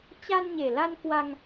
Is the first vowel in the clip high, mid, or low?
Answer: low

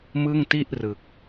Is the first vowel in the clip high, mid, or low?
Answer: high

